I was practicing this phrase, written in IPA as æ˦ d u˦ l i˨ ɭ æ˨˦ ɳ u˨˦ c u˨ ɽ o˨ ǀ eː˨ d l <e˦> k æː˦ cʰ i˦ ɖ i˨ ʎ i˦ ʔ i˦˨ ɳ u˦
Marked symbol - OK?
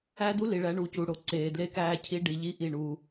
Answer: yes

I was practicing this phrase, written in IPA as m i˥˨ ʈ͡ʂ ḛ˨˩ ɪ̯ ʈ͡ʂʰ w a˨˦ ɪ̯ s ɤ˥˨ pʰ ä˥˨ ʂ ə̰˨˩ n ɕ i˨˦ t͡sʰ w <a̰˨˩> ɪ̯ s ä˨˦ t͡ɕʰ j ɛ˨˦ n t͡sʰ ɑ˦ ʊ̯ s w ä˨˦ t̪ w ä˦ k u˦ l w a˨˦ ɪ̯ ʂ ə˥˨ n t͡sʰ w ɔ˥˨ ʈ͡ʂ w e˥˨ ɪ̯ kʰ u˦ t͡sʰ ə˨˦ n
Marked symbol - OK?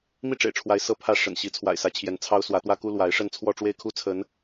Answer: yes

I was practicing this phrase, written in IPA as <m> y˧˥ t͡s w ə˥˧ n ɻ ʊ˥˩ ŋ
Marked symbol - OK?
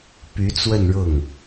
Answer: no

